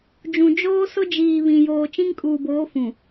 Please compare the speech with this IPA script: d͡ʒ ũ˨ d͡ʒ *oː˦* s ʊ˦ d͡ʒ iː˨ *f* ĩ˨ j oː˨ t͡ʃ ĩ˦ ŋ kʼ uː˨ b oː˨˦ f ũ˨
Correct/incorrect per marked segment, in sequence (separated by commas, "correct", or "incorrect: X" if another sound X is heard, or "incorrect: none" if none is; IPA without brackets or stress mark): correct, incorrect: β